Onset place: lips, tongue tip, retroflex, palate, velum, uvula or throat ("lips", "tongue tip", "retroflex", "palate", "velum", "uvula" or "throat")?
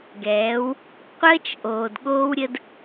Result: velum